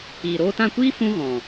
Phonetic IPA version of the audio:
iː˨ɾoː˧tã˦˨kʷiː˦ fũ˦ɣɔ̃˨

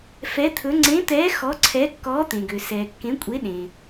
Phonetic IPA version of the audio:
fɛ˧˥t̪ʰɵ˧˥ ŋ͡ǀẽ˧˥t̪ɛː˧˥ xɔ˧˥ǀʰɛ˧˥ kːɔː˧˥t̪ẽ˨ɡø˨ sɛː˨kːẽ˧˥kʷʼe˧˥ɗẽ˨

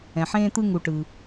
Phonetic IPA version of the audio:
ɛ̃˩ħẽː˦t̪ɯ˦ ŋu˨ʈɯ˩

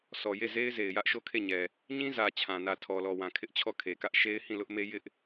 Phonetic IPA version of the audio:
sɔ˨je˦˨ze˦ɪ̯ ze˨ɪ̯ jä˦ʔ ʃo˦˨kʰe˦˨ɲɛ˨ | ɲĩ˦zä˨ t͡ɕʰã˨nä˨ tʰɔ˨lɔ˨wã˨kʰɪ˦ʔ t͡ɕʰɔ˦˨kʰe˨kä˦ʔ ʃe˦ɪ̯hĩ˦˨ lʊ˦ʔme˦ jɪ˦ʔ

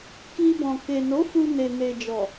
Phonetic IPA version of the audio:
ki˧bɔ̃˨ ke˨ no˨˦fu˧ ne˨ne˨d͡ʒɔ˨

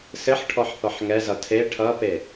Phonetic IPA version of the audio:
sɘħʈʰɔħθɔħ ŋɛzʌ tʰe ʈʰʌpe

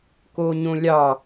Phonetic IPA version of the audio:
koːɲõlʲɑ

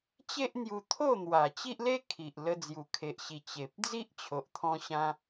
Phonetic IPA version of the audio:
t͡ɕe˦ʔn̪ju˧ t̪ʰo˥˧n̪wa˨˩t͡ɕi˦ʔle˦ kʰi˨ʔ lə˧ d͡zju˨˩kʰe˨ʔɕi˨˩ t͡ɕe˨p̚ d͡zi˦ʔt͡ɕʰo˨ʔt̪ʰɔ̃˧ɕã˧

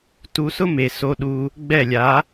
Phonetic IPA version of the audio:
tu˧sʊ˦me˨ so˧ɗu˧ | ɡ͡bɛ˦˨lʲa˨˦

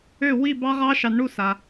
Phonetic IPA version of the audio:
ø˥˩ wi˥˩ bɑ˦˥ʁɑ˦˥ʃɑ˨˩˦nɳu˥˩ sa˩

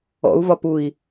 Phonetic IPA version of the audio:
ɔ̰u̯vɒ pui̯

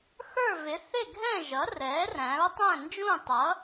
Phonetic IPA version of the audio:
xə˞˥˨vɪ˩˥ θɪ˥˨ɡʱɛ̃˥˨ ʒʌ˩˥rɛː˩˥ ræ̃˩˥ɹ tˤæ̃˥˨nd͡ʒũ˥˨tˤʌ˩˥

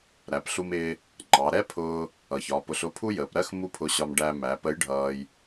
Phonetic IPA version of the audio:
ɾæ˩˧pɬu˧mɪː˧ | ŋ͡ǃɑ˩˧ ɾɛ˥pʰʊː˧ | ʌ˩çɒː˩˧pʊ˧ɬ ʊ˧˥pʰu˥jəː˩˧p ɾɜ˥x mu˥pʰʊ˧ɕɒ˧mɖæ˧ mæ˩˧pə˧˥j ɖʱʌː˧j

